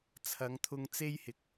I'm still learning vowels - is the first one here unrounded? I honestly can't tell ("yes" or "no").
yes